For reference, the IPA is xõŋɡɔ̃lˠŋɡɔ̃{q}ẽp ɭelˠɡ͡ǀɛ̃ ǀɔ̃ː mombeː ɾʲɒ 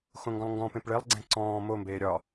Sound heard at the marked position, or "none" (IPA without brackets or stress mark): p